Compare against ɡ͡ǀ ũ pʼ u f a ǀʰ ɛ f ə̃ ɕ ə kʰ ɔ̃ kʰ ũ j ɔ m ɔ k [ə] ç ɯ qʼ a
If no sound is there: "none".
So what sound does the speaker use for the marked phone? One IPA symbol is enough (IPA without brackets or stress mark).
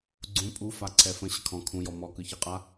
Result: ɯ